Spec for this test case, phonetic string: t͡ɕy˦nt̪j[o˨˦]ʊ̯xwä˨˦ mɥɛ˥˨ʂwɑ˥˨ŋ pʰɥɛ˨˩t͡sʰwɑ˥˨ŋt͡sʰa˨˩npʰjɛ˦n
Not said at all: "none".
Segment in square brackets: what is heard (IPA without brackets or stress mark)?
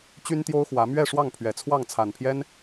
o˦